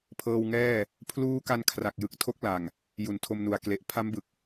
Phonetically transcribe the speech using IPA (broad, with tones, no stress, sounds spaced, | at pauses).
pʰ ɤː˧ w ŋ ɛː˥˩ | pʰ l uː˦˥ k a˧ n kʰ r a˨˩ k̚ j ɯ˨˩ k̚ tʰ o˦˥ k̚ l a˨˩ ŋ | j u˨˩ n tʰ o˧ m n u˨˩ a̯ k l e˨˩ ʔ pʰ a˦˥ m b ɯ˨˩ k̚